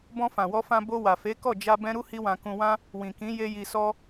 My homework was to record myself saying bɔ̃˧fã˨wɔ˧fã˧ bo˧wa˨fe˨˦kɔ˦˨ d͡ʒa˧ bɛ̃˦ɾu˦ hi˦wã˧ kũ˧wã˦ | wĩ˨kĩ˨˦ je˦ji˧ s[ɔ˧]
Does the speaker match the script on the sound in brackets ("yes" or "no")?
no